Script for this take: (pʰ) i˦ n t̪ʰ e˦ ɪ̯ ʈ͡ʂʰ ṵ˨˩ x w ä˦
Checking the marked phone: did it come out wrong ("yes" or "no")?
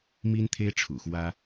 yes